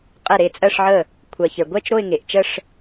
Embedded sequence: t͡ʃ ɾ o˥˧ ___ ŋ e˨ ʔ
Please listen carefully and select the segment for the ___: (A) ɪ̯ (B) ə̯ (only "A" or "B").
A